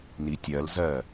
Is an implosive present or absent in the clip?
absent